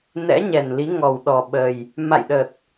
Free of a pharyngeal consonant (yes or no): yes